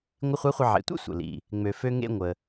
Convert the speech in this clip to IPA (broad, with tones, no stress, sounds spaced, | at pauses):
ŋʷ ɪ˧˥ χʷ ɐ˧˥ χʷ ə˧ ʕ ḛ˩˧ tʷ ḛ˥ sʷ ə̰˩ l ḭ˩ | ŋ͡m ø˩ f ø˧ ŋ ḛ˧ ŋʷ ə˩